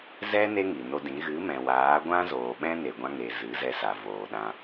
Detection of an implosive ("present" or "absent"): present